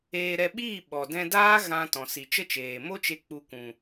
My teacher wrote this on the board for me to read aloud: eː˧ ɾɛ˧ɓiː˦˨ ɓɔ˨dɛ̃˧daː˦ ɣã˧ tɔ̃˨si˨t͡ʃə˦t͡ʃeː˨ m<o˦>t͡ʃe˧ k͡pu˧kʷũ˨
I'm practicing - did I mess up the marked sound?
no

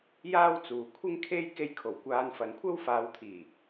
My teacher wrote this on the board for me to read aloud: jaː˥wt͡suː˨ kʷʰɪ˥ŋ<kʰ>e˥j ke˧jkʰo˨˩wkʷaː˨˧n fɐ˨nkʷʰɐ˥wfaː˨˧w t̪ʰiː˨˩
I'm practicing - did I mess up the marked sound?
no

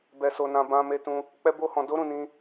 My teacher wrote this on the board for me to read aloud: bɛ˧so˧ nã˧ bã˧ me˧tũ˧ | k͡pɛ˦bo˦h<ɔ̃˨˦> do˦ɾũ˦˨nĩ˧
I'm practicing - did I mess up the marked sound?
yes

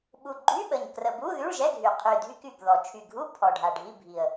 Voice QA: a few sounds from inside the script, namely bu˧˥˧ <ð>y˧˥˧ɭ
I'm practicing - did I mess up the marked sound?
no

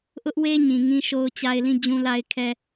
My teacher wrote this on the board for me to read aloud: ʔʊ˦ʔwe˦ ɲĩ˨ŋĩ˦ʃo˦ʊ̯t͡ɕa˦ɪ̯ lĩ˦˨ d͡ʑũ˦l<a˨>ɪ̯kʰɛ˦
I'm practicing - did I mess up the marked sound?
yes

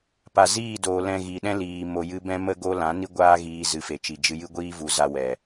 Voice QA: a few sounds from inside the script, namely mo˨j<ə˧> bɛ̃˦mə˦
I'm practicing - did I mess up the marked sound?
yes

